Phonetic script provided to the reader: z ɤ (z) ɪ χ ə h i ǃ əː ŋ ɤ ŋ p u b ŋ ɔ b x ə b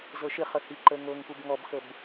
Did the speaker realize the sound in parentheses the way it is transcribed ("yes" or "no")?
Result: no